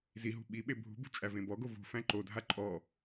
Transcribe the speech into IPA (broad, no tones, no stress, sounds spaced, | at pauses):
z i ɦ ṳ ɓ i ɓ e bʱ ṳ b ṳ t͡ʃʼ æ v ẽ b ɔ ɡ o v ṳ f æ̃ ǃ o dʱ a ǃʼ ɔ